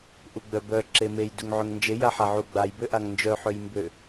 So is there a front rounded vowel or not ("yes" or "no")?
yes